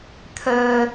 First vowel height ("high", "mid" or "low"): mid